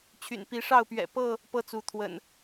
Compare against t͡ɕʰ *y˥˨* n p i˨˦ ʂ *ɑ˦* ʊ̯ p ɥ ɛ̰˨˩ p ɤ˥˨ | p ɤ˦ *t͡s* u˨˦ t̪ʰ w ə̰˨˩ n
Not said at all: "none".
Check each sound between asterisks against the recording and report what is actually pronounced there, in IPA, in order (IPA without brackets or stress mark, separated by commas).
y̰˨˩, ɑ˥˨, t͡s